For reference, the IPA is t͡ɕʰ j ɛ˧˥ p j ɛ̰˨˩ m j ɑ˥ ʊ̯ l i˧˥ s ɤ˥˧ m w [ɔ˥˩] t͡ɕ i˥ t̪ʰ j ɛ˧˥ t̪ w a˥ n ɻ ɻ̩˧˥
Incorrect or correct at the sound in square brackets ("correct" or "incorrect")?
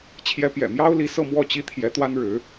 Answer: correct